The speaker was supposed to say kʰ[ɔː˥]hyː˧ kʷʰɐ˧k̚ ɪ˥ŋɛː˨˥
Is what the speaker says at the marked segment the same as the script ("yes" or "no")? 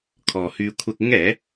no